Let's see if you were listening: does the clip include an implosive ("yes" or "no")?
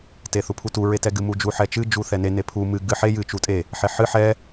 no